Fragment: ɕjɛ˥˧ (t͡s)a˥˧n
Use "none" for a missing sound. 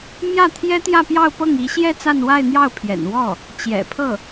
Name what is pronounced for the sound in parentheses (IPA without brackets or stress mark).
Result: t͡s